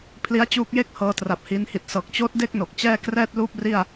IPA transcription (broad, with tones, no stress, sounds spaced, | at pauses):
pʰ l i˦˥ a̯ t͡ɕ uː˦˥ k̚ j e˥˩ k̚ h ɤː˧ t r a˨˩ p̚ h iː˧ n h i˨˩ t̚ s ɤː˨˩ k̚ t͡ɕ oː˦˥ t̚ d e˥˩ k̚ n o˨˩ k̚ t͡ɕ ɛː˥˩ k r ɛː˥˩ t̚ l uː˥˩ p̚ r i˥˩ a̯